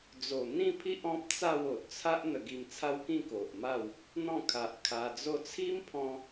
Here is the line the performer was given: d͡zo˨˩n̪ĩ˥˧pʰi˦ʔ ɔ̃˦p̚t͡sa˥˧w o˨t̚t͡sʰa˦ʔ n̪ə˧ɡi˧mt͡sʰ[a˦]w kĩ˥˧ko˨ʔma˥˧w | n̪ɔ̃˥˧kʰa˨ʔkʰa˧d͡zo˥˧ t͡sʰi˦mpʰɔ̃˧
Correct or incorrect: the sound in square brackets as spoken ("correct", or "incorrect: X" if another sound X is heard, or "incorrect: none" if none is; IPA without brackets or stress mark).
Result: correct